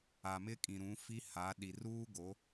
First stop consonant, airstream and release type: ejective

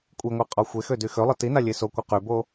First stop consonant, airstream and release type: ejective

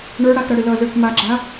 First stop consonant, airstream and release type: plain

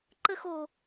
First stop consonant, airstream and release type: click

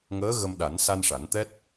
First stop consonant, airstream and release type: implosive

